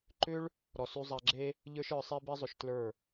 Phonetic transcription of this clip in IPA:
ǃ ʏ˦ ɭ | ɾ ɔ˨ s y˧ zˤ a˧ ɡ͡ǁ e˦ | ʎ ə˞˦ ʃ ə˞˧ sˤ e˦ b i˦ zˤ ʏ˧ ʃ t l ə˞˦˨

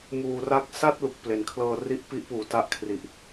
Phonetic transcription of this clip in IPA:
m uː˨˩ r a˦˥ k̚ s a˥˩ t̚ l u˨˩ k̚ p l e˩˦ n kʰ l ɤː˧ r i˥˩ ʔ p i˦˥ ʔ p uː˨˩ t a˦˥ ʔ kʰ r i˨˩ ʔ

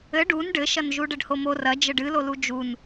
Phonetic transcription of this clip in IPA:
ɘ ɖ u n ɖ ɘ ʃ ɐ n ʒ u ɖ ɘ ɖ h o m o r ɐ d͡ʒ ɘ ɖ ɨ l o l u d͡ʒ u n

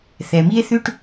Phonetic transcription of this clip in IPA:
θ ɛ˨ m i˦ e̯ θ ʉ˦ ʈ

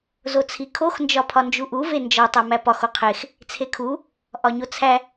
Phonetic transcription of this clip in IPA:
z o t͡sʰ i kʰ o x n d͡ʒ ɒ pʰ ɒ n d͡ʒ u ʔ u v e n d͡ʒ ɒ tˤ æ m æ p ɒ x o qʰ e x | t͡sʰ e kʰ u | ʔ ɒ ɲ o t͡sʰ æ

